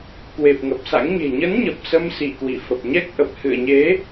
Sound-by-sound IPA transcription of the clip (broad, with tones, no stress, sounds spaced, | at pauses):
k w e˨˩ p̚ ŋ ə˨˩ p̚ s a̰˧˥ ŋ ɲ e̤˨˩ ɲ ə˨˦ n ɲ ə˨˩ p̚ s ə˧ m s i˧˩ k w i˧˩ f ə˨˩ p̚ ɲ ɛ˦˥ k̚ ʔ ə˨˩ p̚ h ɨ̰˧˨ ə̯ ɲ e˨˦